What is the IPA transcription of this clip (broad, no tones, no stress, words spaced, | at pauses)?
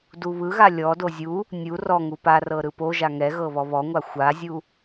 duβɯɣa lʲɔdo zʲu | nʲu rɔŋu parɤ ɾɯpoʒa ŋɛ ɣɤβɔβɔŋʷa xʷazʲu